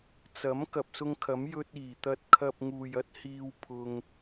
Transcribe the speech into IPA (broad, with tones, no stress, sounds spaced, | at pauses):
t͡s ɐ˨˥ m k ɐ˨ p̚ s ʊ˧ ŋ kʰ ɐ˨˥ m j ɵ˧ t̚ iː˨˩ t̪ ɐ˧ t̚ kʰ ɐ˧ p̚ ŋ uː˨ j ɐ˥ t̚ h iː˧ w pʰ ʊ˧ ŋ